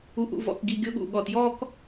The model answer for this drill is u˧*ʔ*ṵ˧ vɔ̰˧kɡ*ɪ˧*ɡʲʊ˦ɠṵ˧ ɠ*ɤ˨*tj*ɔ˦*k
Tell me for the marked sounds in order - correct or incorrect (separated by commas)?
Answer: correct, incorrect, incorrect, incorrect